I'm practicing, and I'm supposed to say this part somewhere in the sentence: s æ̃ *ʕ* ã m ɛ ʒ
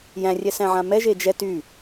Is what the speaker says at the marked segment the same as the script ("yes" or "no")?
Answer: yes